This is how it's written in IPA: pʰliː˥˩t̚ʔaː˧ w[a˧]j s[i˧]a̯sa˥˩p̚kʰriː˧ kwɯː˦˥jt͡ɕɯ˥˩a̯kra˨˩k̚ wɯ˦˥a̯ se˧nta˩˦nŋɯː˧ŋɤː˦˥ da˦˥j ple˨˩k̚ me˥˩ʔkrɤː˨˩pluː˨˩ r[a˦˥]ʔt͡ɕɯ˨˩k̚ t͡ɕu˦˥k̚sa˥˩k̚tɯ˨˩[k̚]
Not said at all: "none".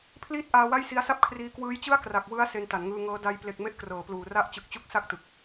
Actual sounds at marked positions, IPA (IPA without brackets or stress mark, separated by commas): a˥˩, i˧, a˦˥, k̚